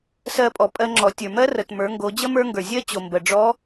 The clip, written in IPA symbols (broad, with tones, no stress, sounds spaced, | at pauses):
s ɜ˧ pʼ ɔ˩ pʼ ɜ˧ ŋ͡ǁ ɔ˩˧ tʲ ə˞˩ m ɜ˥ r ə˩ t m ə˞˩˧ ŋ ɡ o˩˧ d͡ʑ ə˥ m ə˞˥ ŋ ɡ ə˞˩ zʲ ɜ˥ t͡ɕ o˩ m b ə˩ ɖ͡ʐ ɔ˧˥